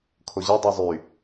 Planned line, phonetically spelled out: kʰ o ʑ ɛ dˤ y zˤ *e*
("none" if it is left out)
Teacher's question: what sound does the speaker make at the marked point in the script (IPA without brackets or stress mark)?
y